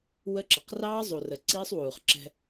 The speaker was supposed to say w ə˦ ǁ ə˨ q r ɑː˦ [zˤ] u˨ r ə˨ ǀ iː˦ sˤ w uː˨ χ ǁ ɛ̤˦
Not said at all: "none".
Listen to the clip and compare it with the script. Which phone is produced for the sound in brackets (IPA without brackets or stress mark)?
zˤ